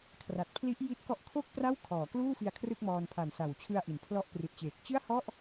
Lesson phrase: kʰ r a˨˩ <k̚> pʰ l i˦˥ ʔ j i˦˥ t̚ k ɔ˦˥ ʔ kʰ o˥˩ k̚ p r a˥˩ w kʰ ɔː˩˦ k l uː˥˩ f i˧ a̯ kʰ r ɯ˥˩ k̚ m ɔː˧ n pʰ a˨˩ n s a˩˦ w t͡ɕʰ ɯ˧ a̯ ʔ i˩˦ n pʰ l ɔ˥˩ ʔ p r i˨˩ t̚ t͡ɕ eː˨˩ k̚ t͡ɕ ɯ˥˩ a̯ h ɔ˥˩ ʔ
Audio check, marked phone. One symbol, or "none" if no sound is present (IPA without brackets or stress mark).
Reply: t̚